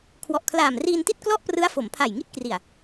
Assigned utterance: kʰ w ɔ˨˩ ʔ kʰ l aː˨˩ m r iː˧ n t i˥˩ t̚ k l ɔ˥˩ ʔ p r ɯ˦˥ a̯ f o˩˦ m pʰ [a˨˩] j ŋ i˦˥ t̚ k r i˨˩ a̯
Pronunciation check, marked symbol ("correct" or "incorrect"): correct